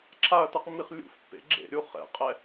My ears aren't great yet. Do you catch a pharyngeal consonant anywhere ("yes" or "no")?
no